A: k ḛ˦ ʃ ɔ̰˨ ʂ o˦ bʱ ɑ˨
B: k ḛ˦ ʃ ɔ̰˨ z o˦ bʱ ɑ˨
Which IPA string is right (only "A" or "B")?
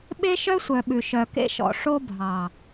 A